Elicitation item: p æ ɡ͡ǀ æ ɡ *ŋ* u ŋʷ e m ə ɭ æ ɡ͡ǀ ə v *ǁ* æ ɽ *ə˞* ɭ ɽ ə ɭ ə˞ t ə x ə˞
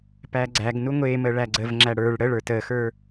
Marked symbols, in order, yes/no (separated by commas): no, no, yes